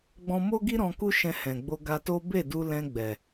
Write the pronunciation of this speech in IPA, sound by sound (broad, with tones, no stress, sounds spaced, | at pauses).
ɡ͡b ɔ̃˧ m o˦ ɡ i˦ ɾ ɔ̃˧ k u˦ ʃ ɛ̃˧ h ɛ̃˨ ɡ͡b o˧ ɡ a˧ t o˦ b e˦˨ d u˧ l ɛ̃˧ ɡ͡b ɛ˨